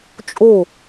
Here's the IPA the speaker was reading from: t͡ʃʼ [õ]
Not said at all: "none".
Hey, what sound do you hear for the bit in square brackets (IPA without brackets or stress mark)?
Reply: o